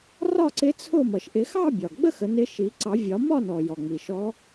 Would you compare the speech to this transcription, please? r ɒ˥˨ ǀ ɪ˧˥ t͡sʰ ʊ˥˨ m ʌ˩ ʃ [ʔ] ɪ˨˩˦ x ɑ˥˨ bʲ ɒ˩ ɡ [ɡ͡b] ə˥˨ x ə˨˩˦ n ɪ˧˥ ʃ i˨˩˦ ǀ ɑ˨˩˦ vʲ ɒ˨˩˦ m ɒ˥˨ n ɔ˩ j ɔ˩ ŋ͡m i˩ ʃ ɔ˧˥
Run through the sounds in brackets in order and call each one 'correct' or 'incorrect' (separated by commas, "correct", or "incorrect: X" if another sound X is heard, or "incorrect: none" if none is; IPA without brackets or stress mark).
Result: correct, correct